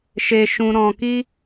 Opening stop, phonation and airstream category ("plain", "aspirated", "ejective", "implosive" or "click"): plain